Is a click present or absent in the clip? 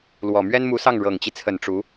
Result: absent